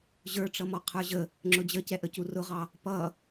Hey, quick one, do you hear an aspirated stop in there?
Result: yes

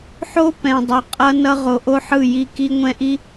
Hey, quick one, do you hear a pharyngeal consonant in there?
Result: yes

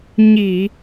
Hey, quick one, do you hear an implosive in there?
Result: no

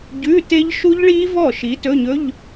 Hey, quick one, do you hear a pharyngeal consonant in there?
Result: no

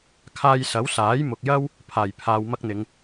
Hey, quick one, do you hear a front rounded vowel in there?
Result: no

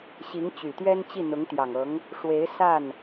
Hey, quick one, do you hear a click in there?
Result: no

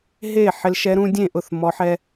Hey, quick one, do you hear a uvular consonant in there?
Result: no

